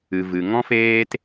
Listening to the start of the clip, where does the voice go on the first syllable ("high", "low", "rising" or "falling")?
low